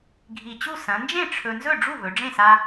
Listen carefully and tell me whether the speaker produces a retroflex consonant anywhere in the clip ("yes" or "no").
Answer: yes